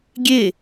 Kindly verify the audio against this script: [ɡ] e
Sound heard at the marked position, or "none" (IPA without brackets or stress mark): ɡʲ